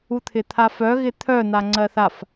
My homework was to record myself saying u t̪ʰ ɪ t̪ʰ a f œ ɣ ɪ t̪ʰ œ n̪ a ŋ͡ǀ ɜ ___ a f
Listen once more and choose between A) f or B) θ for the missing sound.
B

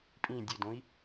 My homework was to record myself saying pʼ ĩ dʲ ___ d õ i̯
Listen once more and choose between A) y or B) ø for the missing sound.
B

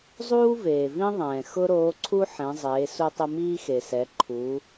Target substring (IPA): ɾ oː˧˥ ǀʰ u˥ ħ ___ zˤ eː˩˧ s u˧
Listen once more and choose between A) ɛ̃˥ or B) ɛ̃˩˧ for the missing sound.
B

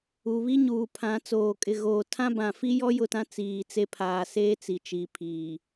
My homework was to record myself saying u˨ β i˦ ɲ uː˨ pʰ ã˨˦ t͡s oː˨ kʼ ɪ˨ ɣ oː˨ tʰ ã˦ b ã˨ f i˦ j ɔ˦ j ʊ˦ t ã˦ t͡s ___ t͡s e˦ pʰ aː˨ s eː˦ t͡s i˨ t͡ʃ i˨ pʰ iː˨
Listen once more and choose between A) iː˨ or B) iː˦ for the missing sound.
A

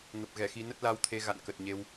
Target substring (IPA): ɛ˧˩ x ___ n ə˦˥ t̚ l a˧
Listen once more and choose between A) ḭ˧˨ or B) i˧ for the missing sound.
B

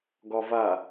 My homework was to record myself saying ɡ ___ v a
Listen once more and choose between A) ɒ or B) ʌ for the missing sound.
A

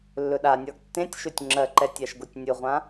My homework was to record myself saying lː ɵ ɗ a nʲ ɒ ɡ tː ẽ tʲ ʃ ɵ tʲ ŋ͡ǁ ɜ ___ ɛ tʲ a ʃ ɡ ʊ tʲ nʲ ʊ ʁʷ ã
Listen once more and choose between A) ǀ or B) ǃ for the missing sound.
B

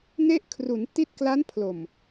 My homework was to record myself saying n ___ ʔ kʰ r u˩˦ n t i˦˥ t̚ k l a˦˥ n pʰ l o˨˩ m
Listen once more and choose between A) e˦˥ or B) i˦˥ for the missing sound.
A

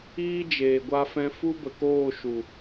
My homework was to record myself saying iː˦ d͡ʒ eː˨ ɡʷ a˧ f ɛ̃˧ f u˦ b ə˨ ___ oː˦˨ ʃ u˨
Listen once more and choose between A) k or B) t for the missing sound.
A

